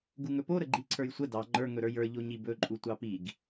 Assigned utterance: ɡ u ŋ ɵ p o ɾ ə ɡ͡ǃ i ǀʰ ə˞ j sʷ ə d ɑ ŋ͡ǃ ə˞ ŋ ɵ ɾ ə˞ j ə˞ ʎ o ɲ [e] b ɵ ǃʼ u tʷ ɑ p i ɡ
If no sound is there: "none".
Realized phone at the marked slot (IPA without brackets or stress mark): i